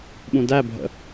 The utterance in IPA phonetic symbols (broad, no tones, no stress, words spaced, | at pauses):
ɓũdæ bʱə̰